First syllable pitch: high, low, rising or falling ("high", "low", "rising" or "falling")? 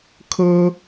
high